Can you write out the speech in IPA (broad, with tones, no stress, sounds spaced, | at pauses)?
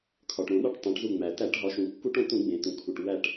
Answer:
kʰ ɒ˩ ʈ ɾ õ˧˩˧ ɗ ɒ˧˩ ʈ tˤ õ˩˧ ʈ z u˧˩ ŋ͡m æ˩ t æ˧˩˧ ʈ ɦ ɒ˩˧ ʃ ũ˩ kː u˧˩˧ ʈ õ˧˩ t ũ˧˩˧ ɡ͡b ẽ˩ t ũ˩ kʰ u˩ ʈ w æ˧˩ ʈ